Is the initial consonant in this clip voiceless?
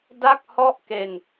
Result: no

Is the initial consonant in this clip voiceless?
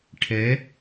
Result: yes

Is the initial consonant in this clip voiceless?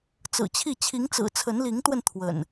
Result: yes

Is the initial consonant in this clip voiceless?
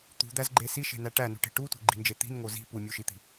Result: yes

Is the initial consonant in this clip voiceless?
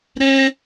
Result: no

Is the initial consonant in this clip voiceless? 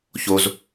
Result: yes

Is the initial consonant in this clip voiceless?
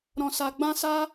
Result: no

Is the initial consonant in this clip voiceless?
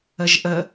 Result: no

